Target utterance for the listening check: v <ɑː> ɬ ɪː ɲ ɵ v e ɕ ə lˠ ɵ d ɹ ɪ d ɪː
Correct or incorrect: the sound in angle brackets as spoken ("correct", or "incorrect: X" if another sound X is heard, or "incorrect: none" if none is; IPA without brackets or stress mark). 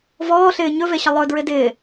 incorrect: ɔː